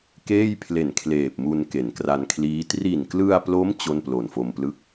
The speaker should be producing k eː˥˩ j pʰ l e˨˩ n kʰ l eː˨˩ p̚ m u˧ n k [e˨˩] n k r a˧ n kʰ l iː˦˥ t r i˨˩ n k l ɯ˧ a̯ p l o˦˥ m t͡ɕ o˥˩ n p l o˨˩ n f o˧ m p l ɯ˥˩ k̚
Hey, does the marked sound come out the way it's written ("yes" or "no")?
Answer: no